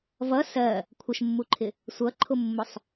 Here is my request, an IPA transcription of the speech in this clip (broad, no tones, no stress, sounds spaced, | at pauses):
v ʌ s ɜ | kʷʰ ə ʃ mː u ǃʰ ɪ | sʷ ʌ ǃʰ ʊ mː ʊ sˤ